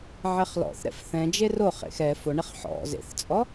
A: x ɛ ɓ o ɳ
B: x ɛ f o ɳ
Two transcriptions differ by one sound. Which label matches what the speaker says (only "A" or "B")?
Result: B